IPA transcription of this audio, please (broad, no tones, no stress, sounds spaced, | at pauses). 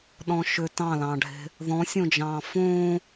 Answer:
ɗ ɔ̃ ʃ ʏ t ɑ̃ l ɑ̃ ɖʱ e̤ | ð ɔ̃ sʲ õ d͡ʒ ɑ̃ː f õː